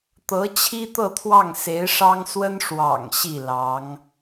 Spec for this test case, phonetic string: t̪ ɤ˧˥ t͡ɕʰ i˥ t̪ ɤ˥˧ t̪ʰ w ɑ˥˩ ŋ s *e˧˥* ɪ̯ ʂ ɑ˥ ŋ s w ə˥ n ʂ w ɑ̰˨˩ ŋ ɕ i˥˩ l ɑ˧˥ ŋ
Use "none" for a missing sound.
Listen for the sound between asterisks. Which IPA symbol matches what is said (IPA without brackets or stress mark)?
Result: e˧˥